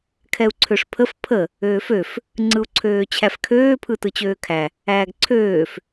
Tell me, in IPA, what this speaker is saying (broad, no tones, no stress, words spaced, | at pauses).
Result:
kʰɛu̯ǀʰøʂpʰəf pʰə | øːføf | ŋ͡ǀɯu̯ǀʰøːt͡ɕʰæfkʰøː pʰɯtɯt͡ɕøːkʰæ | æːɡǀʰøːf